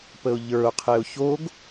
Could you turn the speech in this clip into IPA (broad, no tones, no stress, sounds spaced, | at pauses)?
p ə ʊ̯ ʎ ə˞ ʊ̯ qʰ e ʊ̯ ç o ɡ